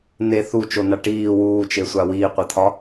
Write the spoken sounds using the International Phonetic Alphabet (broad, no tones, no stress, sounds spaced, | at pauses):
n e θ u t͡ʃ o n a ʈ iː w uː t͡ʃ e sʷ a w iː qʷ e t̪ʰ ɒ